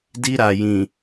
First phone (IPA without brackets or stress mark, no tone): d